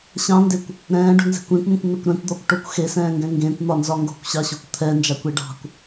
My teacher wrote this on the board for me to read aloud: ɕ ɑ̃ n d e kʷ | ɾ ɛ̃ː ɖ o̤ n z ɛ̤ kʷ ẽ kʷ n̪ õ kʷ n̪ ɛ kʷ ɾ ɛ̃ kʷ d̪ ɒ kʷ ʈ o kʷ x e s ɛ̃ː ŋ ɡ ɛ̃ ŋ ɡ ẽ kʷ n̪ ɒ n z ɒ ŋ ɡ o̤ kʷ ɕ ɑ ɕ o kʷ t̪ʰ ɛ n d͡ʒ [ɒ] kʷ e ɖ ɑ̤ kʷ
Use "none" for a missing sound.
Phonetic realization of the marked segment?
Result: ɑ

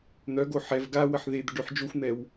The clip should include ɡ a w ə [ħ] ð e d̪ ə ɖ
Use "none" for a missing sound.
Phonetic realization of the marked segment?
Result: ħ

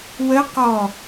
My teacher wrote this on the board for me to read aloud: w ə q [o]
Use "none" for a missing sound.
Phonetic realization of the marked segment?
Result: ɔ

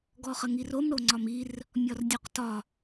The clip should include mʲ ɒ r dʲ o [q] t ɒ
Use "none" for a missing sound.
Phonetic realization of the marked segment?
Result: q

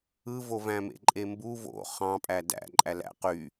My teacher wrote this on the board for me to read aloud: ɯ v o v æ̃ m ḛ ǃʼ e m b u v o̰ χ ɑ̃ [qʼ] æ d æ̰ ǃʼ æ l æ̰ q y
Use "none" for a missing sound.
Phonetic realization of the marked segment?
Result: pʼ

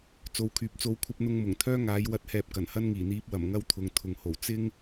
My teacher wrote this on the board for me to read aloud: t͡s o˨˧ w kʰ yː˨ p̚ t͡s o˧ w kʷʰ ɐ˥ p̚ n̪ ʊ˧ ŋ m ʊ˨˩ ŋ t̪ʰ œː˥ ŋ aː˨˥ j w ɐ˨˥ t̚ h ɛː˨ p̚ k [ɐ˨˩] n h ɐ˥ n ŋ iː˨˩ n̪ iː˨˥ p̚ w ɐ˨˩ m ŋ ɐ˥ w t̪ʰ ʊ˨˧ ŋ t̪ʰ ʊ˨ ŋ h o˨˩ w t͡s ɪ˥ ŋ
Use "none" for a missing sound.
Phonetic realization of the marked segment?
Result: ɐ˨˩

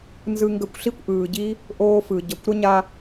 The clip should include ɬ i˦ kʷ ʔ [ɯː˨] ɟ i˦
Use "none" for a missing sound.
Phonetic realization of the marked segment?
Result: ɯː˨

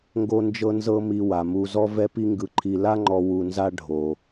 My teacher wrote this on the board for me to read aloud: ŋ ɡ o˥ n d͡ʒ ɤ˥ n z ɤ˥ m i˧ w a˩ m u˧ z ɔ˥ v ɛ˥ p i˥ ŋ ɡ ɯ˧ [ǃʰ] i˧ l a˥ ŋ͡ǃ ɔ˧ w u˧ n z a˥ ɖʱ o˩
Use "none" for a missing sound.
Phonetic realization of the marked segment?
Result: ǃʰ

